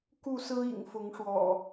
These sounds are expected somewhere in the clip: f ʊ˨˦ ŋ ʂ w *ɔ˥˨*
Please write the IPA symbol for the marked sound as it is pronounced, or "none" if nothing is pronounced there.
ɔ̰˨˩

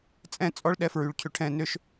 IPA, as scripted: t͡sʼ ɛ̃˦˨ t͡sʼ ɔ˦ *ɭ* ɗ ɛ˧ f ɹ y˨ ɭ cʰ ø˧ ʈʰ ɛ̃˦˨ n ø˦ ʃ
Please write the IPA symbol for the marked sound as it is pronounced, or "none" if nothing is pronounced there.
ɭ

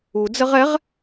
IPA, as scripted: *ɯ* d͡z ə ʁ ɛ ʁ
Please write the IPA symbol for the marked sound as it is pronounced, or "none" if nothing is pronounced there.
u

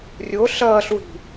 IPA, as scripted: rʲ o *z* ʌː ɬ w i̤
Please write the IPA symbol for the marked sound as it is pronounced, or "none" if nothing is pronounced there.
ɬ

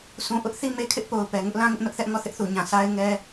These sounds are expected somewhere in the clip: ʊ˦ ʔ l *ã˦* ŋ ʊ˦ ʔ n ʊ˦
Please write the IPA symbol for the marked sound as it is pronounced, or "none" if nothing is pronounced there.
ã˦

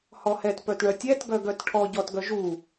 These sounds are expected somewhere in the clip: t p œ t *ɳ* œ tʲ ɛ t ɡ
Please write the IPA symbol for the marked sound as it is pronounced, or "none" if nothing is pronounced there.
ɳ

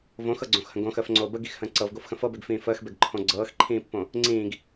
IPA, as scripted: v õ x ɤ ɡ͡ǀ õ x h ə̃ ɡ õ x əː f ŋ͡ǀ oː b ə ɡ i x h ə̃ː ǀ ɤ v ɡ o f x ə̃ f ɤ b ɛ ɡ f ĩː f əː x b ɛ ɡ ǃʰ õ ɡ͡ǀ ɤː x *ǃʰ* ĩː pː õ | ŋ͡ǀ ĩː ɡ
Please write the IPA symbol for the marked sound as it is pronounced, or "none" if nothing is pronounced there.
ǃʰ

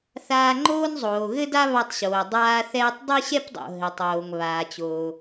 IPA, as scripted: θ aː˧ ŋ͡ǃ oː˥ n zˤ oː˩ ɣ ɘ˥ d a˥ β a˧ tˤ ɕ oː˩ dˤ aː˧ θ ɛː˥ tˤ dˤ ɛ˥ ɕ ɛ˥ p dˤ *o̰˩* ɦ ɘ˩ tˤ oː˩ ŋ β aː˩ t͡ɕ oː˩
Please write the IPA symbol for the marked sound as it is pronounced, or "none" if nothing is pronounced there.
o̰˩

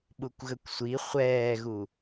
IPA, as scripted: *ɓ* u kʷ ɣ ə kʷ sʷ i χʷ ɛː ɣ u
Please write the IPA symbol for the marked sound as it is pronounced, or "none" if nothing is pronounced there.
ɓ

